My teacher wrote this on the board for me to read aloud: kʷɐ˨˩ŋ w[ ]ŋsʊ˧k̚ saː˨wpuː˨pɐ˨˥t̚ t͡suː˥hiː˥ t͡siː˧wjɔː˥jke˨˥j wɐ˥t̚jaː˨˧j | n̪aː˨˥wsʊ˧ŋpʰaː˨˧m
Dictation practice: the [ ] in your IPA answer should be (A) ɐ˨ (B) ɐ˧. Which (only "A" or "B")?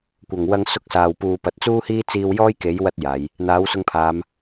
B